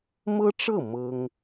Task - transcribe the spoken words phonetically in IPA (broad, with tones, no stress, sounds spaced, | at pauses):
m ɤ˥ ʈ͡ʂ ɤ˥˩ m ɤ˥ ŋ